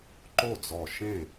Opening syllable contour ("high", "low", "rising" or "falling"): falling